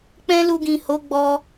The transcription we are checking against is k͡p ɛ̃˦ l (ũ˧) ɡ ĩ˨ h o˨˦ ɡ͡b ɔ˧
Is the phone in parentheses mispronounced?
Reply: yes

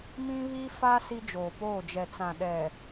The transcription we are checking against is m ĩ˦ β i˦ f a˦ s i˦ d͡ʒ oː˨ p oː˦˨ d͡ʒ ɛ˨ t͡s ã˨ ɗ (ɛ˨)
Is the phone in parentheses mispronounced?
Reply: no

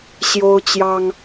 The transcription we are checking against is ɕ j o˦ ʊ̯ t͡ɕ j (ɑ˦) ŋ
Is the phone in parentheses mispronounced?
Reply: no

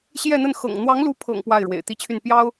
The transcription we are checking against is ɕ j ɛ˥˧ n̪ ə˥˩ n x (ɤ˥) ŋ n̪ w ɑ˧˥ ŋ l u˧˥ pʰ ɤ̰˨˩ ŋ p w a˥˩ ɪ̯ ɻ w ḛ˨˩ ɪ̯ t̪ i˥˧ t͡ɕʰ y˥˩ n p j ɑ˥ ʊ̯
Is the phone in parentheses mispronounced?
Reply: yes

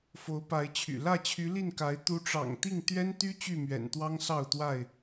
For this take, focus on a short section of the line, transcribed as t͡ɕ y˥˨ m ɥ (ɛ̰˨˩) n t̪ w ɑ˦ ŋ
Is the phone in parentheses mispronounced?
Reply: no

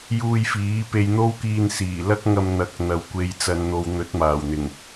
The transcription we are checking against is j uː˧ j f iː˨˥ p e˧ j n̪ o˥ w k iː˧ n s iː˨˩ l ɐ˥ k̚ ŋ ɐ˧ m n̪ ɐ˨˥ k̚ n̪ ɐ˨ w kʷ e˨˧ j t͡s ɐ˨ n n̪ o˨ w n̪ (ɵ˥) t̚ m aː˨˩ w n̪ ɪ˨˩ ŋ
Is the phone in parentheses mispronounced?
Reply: yes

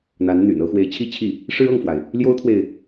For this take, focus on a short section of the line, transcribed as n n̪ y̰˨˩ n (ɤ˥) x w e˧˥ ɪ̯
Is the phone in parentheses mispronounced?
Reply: no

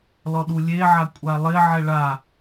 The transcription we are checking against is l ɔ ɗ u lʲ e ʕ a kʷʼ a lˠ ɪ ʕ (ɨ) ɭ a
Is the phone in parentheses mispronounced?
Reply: yes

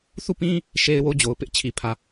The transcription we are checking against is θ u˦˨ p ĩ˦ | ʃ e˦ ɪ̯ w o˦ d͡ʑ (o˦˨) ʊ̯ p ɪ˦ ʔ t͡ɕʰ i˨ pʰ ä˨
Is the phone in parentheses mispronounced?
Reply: yes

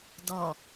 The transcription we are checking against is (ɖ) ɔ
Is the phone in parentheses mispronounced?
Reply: yes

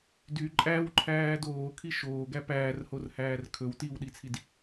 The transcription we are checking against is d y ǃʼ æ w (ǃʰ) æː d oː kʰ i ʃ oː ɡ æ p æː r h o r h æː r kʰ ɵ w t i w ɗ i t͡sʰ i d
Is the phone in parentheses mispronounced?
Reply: no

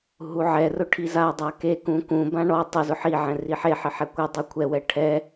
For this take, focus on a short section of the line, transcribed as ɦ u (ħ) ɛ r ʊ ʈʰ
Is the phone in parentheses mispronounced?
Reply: yes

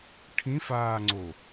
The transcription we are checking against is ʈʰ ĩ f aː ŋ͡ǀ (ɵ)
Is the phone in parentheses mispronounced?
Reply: yes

